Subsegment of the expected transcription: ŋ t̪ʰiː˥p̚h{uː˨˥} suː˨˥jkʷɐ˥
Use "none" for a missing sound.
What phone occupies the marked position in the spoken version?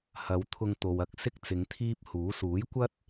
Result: uː˨˥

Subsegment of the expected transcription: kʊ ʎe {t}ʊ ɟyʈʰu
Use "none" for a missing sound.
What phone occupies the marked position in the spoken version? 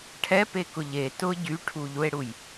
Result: t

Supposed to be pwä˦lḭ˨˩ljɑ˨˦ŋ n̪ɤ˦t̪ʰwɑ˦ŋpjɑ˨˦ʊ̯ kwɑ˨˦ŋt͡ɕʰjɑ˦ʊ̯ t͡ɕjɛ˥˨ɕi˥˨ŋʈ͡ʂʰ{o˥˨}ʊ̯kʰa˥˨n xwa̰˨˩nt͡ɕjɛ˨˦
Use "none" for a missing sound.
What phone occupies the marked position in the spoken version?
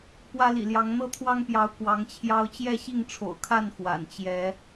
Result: o̰˨˩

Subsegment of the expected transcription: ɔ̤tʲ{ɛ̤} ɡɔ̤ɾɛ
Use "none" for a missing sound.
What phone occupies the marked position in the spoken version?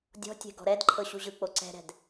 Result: ɛ̤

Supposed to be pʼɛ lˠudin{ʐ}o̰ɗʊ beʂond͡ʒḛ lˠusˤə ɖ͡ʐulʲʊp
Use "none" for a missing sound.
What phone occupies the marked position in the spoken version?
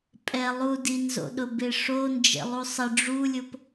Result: z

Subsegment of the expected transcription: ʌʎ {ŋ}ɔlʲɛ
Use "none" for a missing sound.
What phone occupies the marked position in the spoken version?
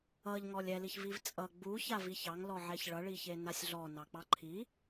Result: ŋ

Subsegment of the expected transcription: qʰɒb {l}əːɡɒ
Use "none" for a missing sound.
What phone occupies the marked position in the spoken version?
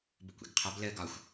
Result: l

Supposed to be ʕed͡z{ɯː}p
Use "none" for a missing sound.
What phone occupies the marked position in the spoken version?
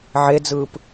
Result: ɯː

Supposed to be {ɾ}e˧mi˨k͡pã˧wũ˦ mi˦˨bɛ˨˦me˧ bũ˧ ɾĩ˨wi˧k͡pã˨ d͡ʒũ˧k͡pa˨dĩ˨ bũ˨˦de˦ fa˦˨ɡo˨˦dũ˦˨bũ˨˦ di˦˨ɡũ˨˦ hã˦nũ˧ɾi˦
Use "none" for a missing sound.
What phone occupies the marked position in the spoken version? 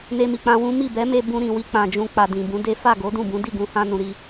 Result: n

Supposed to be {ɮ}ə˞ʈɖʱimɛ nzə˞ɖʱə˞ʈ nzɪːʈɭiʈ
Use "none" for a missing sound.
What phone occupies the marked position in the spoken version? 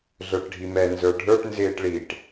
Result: ɮ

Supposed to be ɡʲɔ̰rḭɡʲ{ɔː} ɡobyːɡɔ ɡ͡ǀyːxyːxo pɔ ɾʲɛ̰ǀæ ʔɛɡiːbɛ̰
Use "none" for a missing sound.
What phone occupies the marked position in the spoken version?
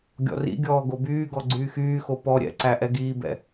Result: ɔː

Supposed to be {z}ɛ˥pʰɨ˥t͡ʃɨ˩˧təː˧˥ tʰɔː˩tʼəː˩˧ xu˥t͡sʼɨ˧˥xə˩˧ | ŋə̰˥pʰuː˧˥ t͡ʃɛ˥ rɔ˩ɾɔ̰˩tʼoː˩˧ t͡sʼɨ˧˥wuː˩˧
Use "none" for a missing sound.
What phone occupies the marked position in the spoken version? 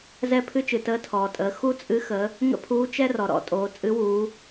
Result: z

